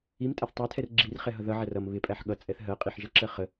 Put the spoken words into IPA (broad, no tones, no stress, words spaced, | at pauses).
imtʼæθ tˤætʰɛr ɡ͡ǁirχɛɦʌ ðʌʕær ʌm βɪpʼæħ ɠʌt͡sʼɛθ ɦɜqʼiħʒʌǁɜ χə